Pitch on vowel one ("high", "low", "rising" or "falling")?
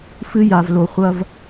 high